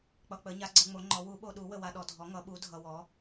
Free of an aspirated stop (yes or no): yes